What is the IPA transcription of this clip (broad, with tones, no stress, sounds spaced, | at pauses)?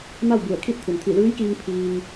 m a˥˨ w b u˧˩ ə̯ kʰ iː˥˨ t̚ t̪ʰ u˩ n t̪ʰ i˧˩ l ɯː˧˥ j k iː˧ ŋ pʰ iː˧ ŋ